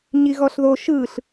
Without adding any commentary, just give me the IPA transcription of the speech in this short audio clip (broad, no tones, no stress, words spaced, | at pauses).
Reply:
ɲiɣɔɬðo ʃɯɬ